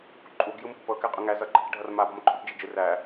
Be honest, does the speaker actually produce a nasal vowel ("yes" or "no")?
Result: no